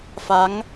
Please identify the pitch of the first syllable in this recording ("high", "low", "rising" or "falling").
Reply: rising